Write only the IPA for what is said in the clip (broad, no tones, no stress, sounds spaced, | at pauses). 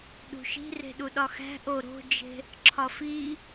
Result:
ɗ ṳ ʃ i̤ r e̤ ɗ u ɗ ɒ x æ̤ ʔ o ɾ o̤ d͡ʒ e̤ | ǁʰ ɒ f i